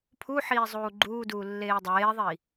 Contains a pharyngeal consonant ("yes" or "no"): yes